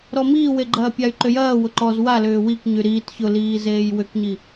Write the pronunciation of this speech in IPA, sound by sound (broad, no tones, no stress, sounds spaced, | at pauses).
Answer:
ɾ ɔ m iː w e ɡ͡ǃ ɐː pʲ a y̯ ǃ ʏ j ɐː w ʊ ǃ ɔ z w a l ʏː w i k ɲ y ɾ iː t ç ʊ l iː z eː j w ʏ k ɲ i